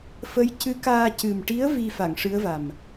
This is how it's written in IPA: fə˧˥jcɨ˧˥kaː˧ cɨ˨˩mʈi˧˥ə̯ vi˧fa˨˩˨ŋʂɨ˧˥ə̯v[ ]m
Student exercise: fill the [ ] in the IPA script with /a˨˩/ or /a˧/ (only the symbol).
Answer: a˨˩